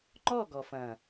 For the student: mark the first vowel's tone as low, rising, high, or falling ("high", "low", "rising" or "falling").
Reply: falling